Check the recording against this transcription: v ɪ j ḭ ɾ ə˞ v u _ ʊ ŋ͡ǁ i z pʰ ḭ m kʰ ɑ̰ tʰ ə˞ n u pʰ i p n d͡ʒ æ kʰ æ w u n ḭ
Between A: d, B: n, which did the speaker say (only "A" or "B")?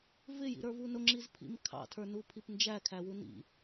B